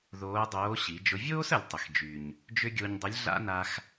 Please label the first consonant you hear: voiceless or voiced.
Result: voiced